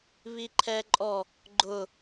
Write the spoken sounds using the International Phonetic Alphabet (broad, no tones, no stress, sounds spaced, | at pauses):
β i ǃʰ ɛ ǃʼ ɔ | ɡ͡ǃ ʊ